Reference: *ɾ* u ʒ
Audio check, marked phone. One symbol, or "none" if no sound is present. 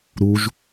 ɾ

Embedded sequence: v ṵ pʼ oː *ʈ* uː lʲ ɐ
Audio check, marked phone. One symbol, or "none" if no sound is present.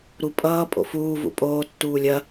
tː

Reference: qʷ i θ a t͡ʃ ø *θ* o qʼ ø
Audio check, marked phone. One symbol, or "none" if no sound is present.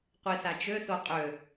θ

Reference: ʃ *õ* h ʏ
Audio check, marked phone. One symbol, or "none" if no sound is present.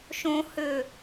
õ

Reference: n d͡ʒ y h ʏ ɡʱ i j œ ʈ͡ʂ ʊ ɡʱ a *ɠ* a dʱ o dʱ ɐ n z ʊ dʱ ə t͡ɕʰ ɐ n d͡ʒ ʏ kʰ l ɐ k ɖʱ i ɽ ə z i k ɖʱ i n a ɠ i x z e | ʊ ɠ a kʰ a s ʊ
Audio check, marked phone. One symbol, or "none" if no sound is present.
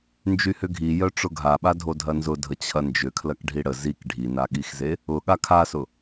ɓ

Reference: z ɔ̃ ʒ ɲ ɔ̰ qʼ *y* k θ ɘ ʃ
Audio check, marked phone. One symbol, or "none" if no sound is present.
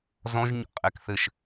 e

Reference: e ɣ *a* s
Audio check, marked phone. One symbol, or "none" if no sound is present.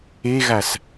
a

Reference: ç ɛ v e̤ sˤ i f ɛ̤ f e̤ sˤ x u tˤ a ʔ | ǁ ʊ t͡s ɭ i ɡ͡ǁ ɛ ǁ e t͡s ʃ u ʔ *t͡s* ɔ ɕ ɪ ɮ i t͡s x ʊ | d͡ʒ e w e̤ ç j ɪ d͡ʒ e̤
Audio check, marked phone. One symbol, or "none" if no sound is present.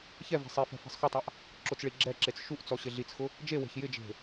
t͡s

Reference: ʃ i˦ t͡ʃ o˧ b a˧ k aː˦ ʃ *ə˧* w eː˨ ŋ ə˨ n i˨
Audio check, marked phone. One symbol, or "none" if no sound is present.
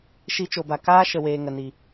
ə˨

